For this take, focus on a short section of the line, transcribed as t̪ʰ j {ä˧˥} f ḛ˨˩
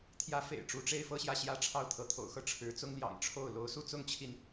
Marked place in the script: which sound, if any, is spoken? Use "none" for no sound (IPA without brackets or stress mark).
ä˧˥